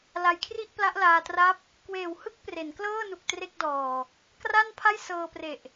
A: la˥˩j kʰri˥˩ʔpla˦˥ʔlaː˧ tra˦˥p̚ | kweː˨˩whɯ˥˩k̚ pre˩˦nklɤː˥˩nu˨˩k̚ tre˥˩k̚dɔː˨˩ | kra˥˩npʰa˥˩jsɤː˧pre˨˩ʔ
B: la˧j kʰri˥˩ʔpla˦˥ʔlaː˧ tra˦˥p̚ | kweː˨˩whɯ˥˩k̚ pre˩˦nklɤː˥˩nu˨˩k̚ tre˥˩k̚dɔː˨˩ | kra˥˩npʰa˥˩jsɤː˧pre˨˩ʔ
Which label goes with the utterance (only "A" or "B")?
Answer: B